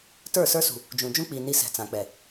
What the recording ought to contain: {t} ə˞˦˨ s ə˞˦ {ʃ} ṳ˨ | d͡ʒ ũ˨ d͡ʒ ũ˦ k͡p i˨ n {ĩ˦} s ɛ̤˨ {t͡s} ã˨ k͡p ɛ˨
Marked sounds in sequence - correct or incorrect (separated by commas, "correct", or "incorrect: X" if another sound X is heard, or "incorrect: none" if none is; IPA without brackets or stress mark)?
correct, incorrect: s, incorrect: i˦, correct